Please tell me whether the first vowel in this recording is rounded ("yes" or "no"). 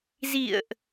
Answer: no